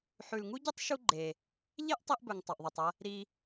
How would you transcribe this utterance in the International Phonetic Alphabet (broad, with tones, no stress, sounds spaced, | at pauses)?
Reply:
ħ ʉ˩ l ŋ u˥ ɟ ɨ˥ tˤ ʃ u˧ ɡ͡ǃ e˩ | ʎ e˥ ʔ tˤ i˧ ʔ b ɵ˩ ŋ tˤ ɐ˩ ʔ ðˤ i˩ tˤ ɐ˧ | ɾ i˧